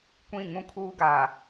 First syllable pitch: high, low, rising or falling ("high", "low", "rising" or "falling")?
falling